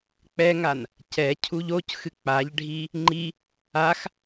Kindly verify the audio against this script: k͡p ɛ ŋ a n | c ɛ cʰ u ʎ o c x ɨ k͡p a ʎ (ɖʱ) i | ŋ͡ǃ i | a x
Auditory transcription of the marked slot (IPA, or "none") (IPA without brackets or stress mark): ɖʱ